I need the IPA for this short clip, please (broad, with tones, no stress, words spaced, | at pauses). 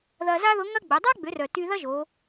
ðɐ˧za˥ðʊ˧˥ŋɐ˥ ɡ͡bə˩˧ dˤa˥ɡ͡bʏ˩˧rœ˩ ty˧ðɐ˥ʒo˩˧